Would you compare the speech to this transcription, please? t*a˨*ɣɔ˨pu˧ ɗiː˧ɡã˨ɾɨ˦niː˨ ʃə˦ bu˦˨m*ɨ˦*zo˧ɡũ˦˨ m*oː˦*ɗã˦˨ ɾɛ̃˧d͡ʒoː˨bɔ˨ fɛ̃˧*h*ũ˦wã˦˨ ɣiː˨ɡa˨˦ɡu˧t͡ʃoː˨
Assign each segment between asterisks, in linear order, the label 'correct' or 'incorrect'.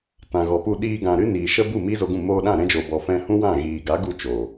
incorrect: ã˨, incorrect: i˦, incorrect: oː˧, correct

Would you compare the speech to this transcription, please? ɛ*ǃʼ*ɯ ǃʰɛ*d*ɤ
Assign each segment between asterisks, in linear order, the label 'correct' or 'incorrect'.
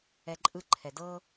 correct, correct

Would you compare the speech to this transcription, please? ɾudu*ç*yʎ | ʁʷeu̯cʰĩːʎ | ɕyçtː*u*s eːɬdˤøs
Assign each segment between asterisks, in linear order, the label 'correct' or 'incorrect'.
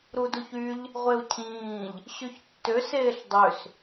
correct, incorrect: ø

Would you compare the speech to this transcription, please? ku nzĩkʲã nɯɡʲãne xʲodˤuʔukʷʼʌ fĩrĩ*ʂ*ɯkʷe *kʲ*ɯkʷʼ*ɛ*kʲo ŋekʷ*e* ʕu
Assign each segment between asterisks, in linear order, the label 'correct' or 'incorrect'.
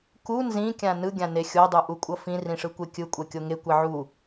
correct, correct, correct, incorrect: ɛ

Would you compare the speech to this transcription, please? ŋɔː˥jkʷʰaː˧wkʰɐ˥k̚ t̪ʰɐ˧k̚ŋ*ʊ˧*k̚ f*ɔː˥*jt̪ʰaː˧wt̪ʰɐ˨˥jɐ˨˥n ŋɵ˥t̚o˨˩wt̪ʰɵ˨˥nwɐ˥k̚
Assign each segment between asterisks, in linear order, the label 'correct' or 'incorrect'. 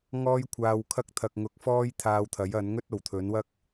correct, correct

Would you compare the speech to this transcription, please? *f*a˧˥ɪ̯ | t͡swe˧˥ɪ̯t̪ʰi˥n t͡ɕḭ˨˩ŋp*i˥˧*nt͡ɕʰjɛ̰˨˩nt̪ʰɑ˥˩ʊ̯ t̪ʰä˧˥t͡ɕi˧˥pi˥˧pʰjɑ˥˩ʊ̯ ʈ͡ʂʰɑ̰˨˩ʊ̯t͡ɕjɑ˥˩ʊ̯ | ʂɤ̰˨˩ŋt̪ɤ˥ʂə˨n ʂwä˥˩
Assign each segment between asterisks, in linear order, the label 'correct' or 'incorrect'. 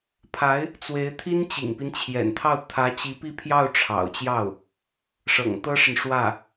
incorrect: pʰ, incorrect: i˦

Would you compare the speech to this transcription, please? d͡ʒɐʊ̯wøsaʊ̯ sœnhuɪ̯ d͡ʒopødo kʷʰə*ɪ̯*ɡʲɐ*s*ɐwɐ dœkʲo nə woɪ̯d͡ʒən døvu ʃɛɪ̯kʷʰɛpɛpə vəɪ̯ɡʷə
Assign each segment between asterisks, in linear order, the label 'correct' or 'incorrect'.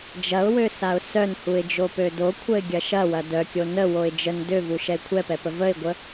correct, incorrect: ʃ

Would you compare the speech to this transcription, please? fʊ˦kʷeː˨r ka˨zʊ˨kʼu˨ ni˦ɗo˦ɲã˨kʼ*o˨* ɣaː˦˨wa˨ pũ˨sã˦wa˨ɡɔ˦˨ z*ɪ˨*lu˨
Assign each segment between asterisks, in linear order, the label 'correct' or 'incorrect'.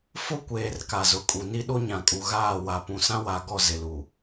incorrect: u˨, correct

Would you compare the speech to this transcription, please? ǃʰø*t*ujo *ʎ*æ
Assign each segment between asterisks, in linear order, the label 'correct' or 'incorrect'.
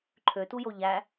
correct, correct

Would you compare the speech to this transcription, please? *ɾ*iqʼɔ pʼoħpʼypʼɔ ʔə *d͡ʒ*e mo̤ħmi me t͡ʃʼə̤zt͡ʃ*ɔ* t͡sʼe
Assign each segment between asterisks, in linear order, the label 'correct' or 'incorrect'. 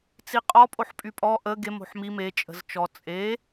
incorrect: t͡s, incorrect: ɡ, correct

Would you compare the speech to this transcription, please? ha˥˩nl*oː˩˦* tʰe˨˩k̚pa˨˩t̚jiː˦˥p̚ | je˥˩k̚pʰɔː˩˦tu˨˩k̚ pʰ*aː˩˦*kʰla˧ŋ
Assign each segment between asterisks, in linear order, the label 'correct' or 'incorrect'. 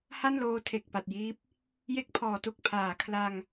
incorrect: oː˧, correct

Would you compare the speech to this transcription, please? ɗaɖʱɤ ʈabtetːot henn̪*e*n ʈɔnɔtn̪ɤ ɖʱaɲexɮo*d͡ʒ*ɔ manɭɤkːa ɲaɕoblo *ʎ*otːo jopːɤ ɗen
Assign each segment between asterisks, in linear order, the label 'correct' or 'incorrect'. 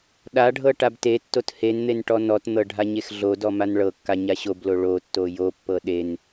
correct, incorrect: d, incorrect: ɭ

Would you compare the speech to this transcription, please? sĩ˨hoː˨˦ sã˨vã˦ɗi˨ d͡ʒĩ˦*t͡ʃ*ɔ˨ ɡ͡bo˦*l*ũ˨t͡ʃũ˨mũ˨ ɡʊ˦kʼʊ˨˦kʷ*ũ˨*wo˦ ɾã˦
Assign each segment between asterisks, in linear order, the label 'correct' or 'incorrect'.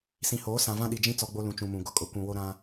incorrect: t͡s, correct, correct

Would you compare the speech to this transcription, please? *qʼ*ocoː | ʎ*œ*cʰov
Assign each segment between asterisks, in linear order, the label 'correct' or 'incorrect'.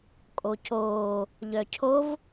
incorrect: kʼ, correct

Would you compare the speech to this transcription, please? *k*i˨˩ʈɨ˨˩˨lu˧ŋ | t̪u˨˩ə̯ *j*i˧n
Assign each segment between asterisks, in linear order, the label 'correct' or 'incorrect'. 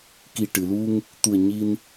correct, incorrect: ɲ

